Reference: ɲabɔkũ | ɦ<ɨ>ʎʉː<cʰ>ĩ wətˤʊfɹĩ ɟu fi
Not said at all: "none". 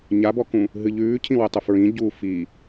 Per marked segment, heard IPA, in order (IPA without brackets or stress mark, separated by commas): ɨ, cʰ